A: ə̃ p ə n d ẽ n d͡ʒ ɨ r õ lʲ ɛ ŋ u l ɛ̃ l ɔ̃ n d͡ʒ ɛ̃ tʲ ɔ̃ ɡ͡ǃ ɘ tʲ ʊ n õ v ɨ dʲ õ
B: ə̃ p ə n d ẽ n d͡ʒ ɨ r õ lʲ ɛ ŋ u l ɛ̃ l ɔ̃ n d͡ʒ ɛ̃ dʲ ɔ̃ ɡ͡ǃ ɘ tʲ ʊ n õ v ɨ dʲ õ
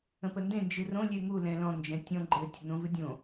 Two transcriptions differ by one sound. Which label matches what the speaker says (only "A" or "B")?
A